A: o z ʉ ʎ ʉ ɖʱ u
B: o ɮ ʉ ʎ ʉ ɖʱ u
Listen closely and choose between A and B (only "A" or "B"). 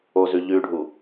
A